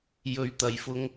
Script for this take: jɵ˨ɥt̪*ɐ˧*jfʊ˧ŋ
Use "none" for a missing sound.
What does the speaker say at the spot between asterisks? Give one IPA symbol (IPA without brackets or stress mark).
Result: ɐ˨˩